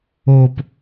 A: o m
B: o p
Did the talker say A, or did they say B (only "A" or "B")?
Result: B